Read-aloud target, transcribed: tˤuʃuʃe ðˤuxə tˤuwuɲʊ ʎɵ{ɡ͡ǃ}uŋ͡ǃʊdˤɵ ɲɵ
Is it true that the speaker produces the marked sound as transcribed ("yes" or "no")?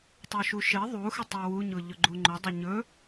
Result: yes